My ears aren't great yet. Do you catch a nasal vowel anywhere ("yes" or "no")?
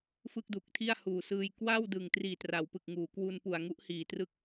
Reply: no